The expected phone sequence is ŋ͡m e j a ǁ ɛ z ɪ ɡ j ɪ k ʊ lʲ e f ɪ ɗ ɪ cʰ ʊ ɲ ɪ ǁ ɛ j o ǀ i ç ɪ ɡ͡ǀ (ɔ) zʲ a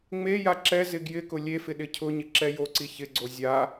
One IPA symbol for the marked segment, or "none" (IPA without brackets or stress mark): o